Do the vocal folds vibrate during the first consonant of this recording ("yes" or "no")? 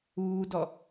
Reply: yes